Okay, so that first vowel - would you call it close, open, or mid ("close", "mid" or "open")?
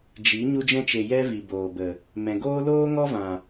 close